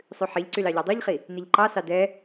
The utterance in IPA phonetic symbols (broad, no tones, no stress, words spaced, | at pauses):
sˤʉħiʎǀyl ɑʎɑdˤuʎχi | niʎǃɑsɑ dɛ